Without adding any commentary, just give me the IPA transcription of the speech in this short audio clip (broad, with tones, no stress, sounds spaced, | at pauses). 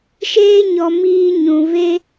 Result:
ʃ eː˦ ɲ ɔ˧ m iː˦ ɲ ũ˧ v e˧